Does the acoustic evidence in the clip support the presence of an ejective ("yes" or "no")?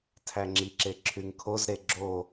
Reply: no